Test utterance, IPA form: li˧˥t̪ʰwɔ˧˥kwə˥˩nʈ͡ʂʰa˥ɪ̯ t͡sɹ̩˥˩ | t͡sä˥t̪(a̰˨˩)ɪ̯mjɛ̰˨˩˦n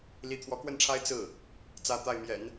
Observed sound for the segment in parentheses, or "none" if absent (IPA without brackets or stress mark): a˥˩